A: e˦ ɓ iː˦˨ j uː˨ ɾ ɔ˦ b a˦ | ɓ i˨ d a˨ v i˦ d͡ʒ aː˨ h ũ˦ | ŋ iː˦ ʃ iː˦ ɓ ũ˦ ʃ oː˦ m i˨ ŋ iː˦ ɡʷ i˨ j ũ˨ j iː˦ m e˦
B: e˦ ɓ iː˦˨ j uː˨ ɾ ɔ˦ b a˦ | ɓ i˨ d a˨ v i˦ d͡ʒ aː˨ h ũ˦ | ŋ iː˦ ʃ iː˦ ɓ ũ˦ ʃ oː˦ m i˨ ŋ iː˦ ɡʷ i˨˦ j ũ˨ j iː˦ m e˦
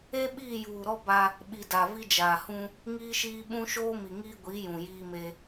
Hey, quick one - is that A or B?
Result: B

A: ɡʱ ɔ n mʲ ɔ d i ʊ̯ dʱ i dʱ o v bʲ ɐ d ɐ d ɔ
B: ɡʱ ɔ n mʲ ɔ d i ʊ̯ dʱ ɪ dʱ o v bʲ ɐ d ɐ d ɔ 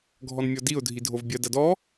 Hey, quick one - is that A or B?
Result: A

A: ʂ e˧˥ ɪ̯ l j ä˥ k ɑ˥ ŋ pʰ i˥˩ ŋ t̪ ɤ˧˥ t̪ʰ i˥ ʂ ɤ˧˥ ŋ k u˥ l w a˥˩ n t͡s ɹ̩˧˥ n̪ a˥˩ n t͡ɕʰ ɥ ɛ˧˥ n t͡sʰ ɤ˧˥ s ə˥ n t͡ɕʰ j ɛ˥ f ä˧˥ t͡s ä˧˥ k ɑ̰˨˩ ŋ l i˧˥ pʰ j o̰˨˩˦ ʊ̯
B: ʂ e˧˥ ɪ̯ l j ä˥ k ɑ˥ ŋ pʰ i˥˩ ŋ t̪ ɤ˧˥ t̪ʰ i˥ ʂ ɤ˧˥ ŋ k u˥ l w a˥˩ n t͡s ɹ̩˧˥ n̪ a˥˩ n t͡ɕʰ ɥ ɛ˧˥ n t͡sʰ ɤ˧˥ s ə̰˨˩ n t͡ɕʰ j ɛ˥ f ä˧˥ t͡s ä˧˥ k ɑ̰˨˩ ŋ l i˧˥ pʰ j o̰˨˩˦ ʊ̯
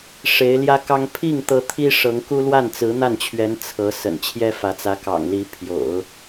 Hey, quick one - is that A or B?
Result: B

